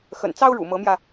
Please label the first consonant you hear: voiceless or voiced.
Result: voiceless